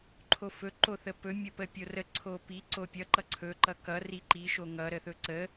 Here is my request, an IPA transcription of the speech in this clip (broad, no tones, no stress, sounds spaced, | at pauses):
ǃʰ o f ɵ ǃ o θ ə p ɵ mʲ o p ə pʲ o r ə ǀʰ o p i ǀ o pʲ ʌ ǃ ʌ ǀʰ ɵ ǃ ʌ k ʌ r i ǃ i ʃ o ŋ ʌ ɾ ə θ ɵ ǀ ə